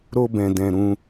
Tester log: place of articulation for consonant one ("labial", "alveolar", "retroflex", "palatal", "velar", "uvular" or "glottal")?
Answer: alveolar